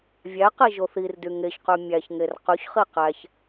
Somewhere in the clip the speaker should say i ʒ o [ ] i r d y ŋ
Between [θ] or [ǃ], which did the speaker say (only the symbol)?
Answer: θ